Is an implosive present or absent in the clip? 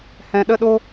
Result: present